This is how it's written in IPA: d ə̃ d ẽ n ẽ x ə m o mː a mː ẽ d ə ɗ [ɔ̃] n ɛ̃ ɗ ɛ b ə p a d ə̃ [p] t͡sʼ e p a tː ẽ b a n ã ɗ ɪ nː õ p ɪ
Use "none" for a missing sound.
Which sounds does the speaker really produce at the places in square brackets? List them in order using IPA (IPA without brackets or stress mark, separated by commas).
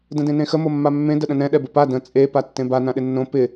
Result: ə̃, none